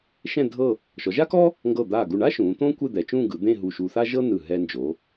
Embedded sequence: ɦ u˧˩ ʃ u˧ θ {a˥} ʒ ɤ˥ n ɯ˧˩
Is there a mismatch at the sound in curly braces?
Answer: no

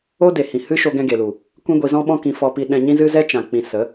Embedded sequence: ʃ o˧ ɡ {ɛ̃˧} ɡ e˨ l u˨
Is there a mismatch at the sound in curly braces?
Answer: no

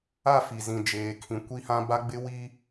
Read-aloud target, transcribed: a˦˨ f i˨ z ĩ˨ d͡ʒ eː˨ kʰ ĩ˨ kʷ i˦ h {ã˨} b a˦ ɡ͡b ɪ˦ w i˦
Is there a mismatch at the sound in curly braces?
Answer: yes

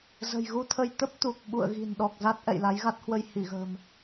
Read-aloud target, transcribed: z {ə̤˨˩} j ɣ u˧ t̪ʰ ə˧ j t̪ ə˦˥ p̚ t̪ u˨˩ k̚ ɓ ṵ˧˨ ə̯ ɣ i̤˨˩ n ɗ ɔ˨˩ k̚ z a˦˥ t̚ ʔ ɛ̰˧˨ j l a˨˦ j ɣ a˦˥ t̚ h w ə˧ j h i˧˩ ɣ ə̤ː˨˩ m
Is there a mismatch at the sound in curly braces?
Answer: no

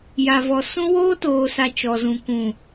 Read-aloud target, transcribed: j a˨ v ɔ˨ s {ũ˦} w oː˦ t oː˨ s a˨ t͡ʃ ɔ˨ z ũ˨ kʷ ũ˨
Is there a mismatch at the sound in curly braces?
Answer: no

